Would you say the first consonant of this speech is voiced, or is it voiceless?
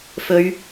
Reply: voiceless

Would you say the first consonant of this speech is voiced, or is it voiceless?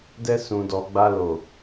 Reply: voiced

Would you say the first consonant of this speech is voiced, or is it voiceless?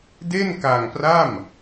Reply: voiced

